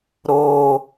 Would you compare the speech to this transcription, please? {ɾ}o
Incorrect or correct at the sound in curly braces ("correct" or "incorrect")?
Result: correct